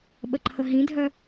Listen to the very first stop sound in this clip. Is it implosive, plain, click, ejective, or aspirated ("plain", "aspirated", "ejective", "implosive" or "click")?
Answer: implosive